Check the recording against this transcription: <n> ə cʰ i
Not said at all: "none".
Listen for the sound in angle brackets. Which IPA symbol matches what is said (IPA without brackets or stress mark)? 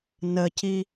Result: n